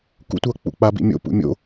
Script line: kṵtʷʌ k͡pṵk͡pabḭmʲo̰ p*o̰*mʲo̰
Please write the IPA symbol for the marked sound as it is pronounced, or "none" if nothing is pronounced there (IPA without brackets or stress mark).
ṵ